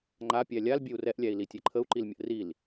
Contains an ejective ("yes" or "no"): no